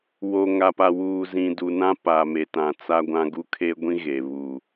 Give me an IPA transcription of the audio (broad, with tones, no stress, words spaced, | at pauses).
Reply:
wo˨ŋa˨pa˨ wuː˨zĩ˨du˨nã˦ paː˨me˨tã˨ t͡sa˦ɡʷã˦ ɡu˦kʰe˦ɡʷĩ˦ ɣe˨ βu˨